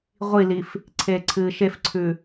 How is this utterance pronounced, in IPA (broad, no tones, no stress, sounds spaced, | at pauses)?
ʁʷ i l i f | ǀʰ eː ǀʰ ɨː ʃ e f ǀʰ ʉ